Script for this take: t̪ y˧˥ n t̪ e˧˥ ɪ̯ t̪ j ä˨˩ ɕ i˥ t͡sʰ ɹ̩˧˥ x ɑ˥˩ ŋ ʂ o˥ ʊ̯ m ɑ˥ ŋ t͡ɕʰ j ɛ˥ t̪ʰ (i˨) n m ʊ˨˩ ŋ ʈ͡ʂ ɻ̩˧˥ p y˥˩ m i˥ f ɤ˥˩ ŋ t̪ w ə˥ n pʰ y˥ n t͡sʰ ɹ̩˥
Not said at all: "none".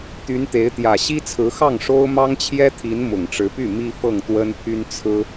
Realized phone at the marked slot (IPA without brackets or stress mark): i˧˥